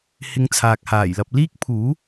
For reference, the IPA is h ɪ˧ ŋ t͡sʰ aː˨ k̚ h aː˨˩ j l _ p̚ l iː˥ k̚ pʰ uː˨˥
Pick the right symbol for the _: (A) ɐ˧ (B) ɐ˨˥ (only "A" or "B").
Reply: A